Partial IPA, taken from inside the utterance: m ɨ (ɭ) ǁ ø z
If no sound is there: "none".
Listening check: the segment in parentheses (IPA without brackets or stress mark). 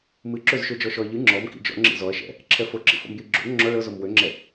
none